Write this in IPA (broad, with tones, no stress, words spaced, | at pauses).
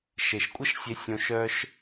ʃe˨ʃkʷʼə˦ʃsʲe˧ sʲõ˧ʃœ˦ʃ